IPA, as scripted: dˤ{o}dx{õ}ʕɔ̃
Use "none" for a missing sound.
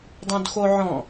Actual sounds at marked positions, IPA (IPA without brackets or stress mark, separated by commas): õ, o